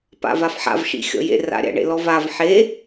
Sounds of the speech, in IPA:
p a̰ v a f ħ a̰ v ʃ ḭ xʲ ɔ̰ j ḛ r a̰ ɾʲ a̰ ɳ ḛ l ɔ v a v ħ e

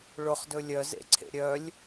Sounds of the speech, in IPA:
ɭ ʊ χ d ɵ lʲ œ z ḛ ǀʰ ḛ ɾʲ œ lʲ

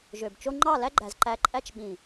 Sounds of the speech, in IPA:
ʒ ø˨ b t͡ʃ o˦ ŋ͡ǃ ɑ˦˨ l æ˦ ɡ͡ǃ æ˨ z ǃ æ˧ ǃʼ æ˦ t͡ʃ ɓ ĩ˨

